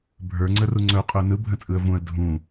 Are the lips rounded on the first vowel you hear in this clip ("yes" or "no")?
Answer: no